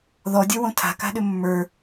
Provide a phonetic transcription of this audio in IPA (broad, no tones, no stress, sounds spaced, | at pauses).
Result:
ð ɔ dʲ ə˞ w õ tʰ a̤ k a̤ ɗ ʏ mː ə˞